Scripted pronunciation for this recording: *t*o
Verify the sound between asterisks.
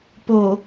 incorrect: p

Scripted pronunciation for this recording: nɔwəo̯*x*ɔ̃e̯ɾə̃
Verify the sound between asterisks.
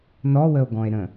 incorrect: ɡ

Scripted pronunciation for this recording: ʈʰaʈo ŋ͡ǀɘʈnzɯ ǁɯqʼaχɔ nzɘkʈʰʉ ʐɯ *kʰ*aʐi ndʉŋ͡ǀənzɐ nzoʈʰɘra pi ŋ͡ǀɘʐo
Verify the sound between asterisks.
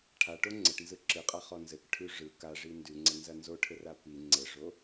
incorrect: k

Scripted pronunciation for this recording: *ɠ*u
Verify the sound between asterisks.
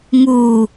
incorrect: ŋ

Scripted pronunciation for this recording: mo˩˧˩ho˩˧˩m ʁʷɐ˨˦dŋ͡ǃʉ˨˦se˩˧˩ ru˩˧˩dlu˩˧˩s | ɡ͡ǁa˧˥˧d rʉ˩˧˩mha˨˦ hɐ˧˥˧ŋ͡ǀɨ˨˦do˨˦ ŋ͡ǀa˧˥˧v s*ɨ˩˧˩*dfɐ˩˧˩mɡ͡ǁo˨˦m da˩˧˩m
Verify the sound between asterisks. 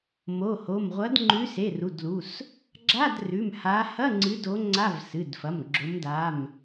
correct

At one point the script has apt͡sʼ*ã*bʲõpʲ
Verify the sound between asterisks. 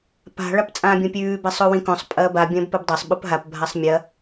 incorrect: ãː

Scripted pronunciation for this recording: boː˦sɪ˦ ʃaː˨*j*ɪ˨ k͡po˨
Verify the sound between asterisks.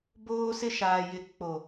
correct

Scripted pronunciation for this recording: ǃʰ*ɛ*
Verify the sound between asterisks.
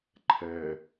correct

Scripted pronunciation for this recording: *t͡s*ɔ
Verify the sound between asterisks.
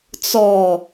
correct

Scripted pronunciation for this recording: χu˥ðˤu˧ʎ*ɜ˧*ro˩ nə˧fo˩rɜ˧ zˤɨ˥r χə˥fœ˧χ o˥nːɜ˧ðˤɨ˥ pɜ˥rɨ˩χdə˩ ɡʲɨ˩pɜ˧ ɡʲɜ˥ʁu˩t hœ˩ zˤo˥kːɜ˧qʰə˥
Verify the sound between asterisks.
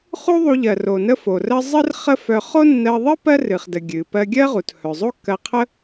incorrect: ɜ˩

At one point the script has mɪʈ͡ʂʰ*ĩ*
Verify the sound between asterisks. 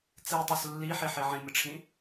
correct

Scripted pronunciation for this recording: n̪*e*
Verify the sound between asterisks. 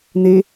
correct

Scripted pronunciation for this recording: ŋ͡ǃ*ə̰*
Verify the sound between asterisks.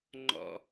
incorrect: ɔ̰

